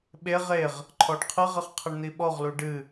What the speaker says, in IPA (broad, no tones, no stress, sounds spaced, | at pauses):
ɓ e ʁ e ʁ | ǃʰ ɔ ɖ qʰ ɨ ʁ ɘ χ qʰ ɘ ɳ n̪ i ɓ ɔ ʁ l u ɖ ɨ